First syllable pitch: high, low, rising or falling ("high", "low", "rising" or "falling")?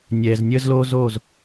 low